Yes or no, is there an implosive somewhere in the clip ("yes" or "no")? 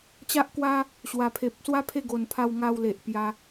no